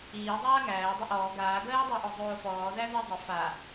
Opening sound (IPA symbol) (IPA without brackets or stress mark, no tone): iː